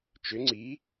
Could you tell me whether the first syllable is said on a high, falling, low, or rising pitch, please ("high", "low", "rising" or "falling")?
rising